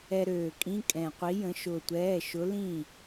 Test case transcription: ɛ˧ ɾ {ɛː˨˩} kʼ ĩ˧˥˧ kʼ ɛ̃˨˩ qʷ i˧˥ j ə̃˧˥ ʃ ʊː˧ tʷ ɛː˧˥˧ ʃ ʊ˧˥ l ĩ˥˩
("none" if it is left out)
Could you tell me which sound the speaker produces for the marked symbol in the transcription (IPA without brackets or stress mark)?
øː˨˩